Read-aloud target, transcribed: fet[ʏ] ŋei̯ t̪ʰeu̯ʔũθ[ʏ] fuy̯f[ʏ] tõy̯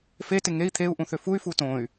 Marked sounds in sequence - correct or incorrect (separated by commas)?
incorrect, correct, incorrect